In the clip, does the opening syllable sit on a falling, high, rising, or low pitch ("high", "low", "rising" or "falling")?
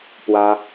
high